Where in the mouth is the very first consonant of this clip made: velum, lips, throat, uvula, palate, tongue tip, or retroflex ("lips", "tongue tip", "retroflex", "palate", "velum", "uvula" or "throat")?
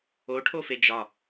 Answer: retroflex